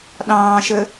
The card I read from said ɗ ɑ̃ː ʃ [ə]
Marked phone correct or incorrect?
correct